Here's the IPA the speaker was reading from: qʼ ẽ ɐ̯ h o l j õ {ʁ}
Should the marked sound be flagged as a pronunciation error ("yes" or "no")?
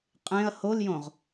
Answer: no